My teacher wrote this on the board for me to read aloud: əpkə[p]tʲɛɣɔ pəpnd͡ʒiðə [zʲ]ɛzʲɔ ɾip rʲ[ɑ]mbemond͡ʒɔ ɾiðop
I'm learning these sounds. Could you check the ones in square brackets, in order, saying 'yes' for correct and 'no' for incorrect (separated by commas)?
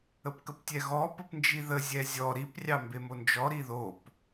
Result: yes, yes, yes